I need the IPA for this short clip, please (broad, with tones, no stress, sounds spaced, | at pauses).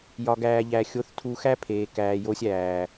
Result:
j ɒ˧ ɡ æː˧ ʎ æ˧ xʲ o˧ θ tʰ u˧ x æ˦ pʰ eː˨ k æː˨ j o˧ sʲ æː˨